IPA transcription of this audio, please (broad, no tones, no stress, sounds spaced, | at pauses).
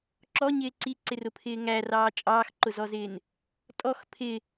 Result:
ǁ ɔ ɲ ɪː ǀ i ǀ ɪ r ʊ pʰ ɪː ŋ æ r ɑː t͡ʃʼ ɑː x ǃ ʊ z ɔ z ɪː n | tʼ ɔ x pʰ ɪ